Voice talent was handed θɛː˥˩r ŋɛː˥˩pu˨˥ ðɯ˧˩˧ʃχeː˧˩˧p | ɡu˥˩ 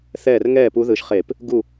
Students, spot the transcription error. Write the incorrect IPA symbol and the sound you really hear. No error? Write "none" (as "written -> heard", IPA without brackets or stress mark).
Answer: none